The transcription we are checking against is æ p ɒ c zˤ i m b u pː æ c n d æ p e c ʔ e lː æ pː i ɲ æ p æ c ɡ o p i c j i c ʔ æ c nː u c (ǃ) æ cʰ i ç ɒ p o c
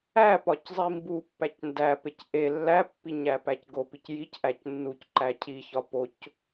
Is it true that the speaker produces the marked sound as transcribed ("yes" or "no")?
yes